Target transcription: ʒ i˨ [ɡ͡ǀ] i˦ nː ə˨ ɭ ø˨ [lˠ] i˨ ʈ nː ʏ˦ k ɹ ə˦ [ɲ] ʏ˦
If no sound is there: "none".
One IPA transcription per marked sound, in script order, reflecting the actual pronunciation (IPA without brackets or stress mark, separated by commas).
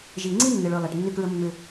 ŋ͡ǀ, lˠ, mː